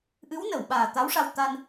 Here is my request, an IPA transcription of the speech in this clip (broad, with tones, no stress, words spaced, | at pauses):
ʔɨ˧˥wnə˨˩˨wɓaː˨˩ t̪a˧˥wʂa˧w t̪a˧n